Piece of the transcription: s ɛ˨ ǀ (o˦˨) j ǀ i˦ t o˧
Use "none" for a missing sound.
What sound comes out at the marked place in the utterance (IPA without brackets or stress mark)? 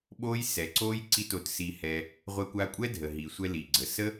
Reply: o˦